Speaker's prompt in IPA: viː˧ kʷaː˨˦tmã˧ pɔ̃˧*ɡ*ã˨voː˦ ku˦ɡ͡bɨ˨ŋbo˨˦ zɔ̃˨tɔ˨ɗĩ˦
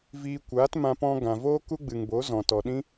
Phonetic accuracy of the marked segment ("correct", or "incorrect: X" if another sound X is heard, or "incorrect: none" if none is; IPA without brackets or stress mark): correct